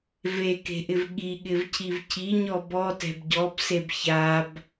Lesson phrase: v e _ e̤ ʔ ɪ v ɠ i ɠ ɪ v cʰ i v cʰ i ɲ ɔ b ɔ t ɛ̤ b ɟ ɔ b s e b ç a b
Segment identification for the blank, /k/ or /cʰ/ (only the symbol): k